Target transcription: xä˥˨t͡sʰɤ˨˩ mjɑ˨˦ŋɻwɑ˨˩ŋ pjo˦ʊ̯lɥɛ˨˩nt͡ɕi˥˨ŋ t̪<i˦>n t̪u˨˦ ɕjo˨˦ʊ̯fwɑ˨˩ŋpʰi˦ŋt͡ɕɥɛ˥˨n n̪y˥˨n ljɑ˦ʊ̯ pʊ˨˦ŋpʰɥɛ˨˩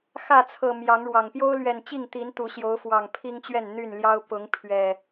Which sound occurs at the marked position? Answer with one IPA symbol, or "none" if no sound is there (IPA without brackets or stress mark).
i˨˦